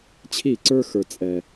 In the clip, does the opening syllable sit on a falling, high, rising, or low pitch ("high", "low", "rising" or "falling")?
falling